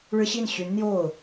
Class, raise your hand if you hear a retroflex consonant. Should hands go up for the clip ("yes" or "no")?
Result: yes